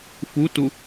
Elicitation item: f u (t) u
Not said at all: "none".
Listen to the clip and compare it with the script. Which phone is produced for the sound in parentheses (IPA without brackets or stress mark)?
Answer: t